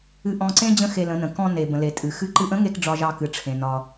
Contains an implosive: no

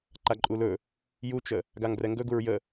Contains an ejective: yes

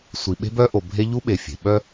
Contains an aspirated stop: no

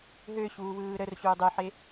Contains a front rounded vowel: yes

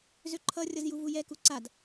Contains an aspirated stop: yes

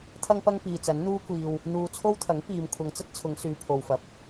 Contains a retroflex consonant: no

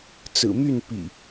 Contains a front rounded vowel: yes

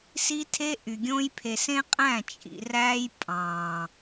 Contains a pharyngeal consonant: no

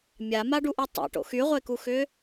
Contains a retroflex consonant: yes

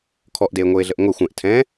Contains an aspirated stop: yes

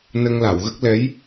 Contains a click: no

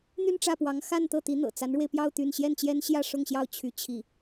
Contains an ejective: no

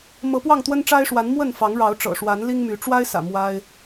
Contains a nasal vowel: no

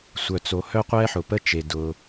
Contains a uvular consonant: yes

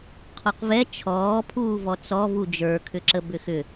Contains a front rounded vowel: yes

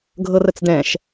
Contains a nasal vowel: yes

